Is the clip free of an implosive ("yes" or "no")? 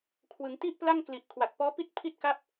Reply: yes